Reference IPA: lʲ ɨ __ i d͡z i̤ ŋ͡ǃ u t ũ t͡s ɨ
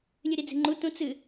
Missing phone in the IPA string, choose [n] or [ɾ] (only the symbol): ɾ